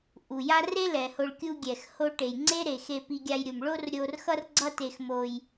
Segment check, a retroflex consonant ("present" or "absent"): present